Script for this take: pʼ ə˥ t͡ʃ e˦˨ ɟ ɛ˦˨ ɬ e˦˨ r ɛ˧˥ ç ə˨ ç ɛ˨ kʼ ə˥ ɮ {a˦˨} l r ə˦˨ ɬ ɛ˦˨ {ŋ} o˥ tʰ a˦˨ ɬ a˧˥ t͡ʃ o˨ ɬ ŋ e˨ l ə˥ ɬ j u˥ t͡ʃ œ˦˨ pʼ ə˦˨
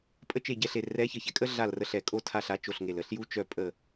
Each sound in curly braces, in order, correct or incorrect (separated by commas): correct, incorrect